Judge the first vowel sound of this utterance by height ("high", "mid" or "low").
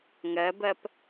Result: mid